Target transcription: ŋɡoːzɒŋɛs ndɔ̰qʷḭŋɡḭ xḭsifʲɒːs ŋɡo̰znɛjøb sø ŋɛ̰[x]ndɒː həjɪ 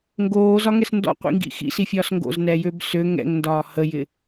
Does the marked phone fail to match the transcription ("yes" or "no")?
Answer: yes